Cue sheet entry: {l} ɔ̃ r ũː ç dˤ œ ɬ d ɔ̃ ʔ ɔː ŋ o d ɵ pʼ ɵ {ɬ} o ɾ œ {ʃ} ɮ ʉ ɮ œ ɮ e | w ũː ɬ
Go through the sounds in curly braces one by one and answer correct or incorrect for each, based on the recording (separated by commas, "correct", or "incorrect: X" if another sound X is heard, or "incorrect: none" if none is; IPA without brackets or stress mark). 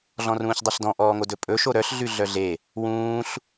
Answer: incorrect: ɮ, incorrect: ʃ, incorrect: ɬ